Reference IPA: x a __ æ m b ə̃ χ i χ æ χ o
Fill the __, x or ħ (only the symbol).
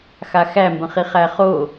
x